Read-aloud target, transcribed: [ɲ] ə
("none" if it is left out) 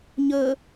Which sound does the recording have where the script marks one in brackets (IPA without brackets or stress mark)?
ɲ